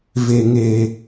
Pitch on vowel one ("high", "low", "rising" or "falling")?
low